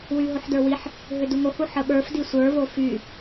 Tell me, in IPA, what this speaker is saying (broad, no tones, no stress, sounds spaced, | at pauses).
w y ɦ o ħ d ə˞ w i ħ | ɦ ʏ d u ŋ o h u ħ ə ɓ ə˞ f d i sʷ ə˞ v o f y